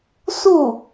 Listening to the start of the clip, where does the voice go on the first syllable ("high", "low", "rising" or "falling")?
falling